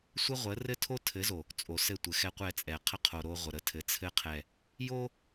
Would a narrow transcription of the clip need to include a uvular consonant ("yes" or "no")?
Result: yes